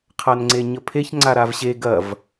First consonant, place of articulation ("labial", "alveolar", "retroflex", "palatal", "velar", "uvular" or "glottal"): uvular